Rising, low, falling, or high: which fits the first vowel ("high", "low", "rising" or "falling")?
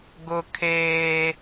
high